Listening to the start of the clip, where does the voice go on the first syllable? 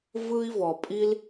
high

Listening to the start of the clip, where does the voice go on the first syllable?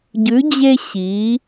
rising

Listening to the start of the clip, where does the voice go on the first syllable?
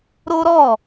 high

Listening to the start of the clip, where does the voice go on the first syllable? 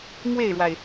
falling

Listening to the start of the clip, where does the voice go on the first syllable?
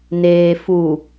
low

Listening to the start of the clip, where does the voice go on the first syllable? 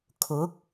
rising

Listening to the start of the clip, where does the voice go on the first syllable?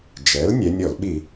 rising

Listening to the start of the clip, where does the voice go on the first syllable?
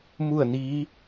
falling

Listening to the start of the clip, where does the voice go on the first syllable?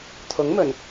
rising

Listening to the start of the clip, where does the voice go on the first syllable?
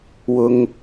high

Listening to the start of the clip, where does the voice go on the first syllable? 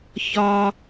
high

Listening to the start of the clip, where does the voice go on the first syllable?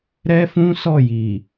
high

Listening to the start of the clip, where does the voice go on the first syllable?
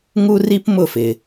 high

